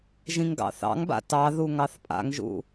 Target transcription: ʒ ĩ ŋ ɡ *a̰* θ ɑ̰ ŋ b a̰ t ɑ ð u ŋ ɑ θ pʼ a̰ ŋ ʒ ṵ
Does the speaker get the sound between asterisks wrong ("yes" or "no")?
yes